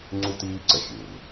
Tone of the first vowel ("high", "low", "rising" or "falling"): high